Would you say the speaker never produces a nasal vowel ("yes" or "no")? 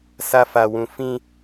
no